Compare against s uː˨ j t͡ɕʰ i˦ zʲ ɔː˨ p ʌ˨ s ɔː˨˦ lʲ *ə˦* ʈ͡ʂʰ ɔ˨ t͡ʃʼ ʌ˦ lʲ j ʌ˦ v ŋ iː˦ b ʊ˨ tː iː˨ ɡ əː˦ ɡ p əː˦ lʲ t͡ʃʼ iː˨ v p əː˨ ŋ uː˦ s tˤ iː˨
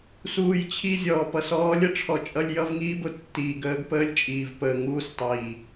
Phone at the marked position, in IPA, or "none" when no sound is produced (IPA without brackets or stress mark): ə˦